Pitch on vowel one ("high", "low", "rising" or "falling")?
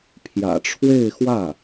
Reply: low